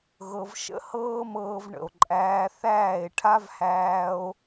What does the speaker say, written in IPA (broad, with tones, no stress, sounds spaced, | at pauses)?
ɣ ɤ˧ v ʃ ə̰˦ h ɤː˦ m ɤː˧ v ɳ ə̰˨ o̯ ǃʼ æː˧ θ æː˦˨ e̯ ʈʰ a˦ v h æː˧ o̯